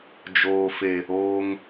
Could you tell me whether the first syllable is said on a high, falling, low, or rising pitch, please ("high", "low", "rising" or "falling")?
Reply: low